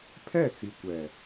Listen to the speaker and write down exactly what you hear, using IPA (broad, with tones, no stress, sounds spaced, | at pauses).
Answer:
pʰ ɛ˦˨ t͡s i˨ kʷ ɛ˨